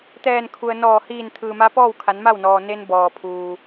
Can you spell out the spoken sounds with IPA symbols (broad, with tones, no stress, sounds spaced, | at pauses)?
t̪ ɛː˧˩ n kʰ u˩ ə̯ n ɔː˧˩ h iː˧˩ n t̪ʰ ɯː˩ m a˧˥ p ɔː˥˨ w kʰ a˩˧ n m a˥˨ w n ɔː˩ n e˧ n b ɔː˩ pʰ uː˩